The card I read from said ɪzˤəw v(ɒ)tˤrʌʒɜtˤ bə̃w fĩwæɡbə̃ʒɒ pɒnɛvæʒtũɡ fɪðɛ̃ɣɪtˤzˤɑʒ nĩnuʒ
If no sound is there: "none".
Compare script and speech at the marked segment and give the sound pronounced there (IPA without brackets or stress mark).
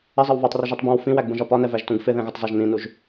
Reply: ɑ